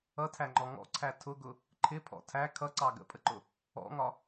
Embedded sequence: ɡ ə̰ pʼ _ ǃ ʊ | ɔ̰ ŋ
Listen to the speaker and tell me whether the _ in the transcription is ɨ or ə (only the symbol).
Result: ə